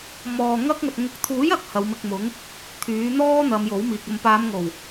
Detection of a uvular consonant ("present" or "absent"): absent